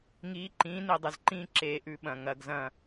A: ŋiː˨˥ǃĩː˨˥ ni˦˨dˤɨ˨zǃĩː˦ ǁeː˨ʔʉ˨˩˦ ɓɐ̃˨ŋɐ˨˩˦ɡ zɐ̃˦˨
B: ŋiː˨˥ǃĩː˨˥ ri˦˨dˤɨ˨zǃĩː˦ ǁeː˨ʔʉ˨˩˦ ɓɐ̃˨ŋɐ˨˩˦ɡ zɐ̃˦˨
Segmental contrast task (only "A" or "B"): A